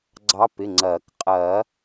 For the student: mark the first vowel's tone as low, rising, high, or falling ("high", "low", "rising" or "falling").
rising